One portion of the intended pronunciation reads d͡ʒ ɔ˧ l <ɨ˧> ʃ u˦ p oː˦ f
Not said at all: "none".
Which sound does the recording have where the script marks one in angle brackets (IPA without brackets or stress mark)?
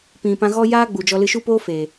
ɨ˧